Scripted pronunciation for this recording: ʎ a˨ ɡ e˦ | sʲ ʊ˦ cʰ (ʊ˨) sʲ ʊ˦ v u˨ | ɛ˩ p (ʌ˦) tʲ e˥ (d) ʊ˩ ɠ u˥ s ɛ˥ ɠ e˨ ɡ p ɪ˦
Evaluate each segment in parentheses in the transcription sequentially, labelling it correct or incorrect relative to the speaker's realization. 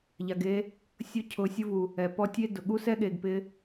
correct, incorrect: ɔ˦, correct

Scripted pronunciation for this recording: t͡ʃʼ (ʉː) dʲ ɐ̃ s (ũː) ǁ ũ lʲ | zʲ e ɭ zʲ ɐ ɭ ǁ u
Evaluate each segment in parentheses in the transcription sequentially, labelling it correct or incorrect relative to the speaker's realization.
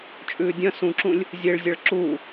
correct, incorrect: ũ

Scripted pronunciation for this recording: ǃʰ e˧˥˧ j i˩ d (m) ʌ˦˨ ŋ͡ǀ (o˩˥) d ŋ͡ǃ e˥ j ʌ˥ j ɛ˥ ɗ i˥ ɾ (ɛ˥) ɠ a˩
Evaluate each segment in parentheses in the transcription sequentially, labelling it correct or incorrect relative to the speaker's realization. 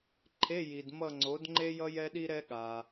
correct, correct, correct

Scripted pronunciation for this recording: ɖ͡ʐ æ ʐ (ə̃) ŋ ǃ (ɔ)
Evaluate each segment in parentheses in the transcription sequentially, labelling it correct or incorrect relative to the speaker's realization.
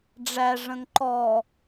correct, correct

